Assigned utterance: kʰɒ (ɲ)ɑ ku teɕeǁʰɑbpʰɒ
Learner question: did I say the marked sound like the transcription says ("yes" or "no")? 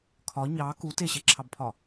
yes